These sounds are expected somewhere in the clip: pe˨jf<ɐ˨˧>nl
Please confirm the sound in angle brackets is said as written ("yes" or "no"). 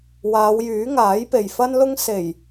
no